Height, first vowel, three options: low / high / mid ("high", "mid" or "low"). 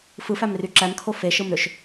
high